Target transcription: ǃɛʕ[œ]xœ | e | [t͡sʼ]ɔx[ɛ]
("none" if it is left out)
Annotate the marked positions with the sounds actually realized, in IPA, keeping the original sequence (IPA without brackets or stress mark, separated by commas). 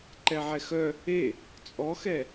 ɛ, t͡sʼ, ɛ